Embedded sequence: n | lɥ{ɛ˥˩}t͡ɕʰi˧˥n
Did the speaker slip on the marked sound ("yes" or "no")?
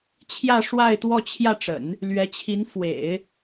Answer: yes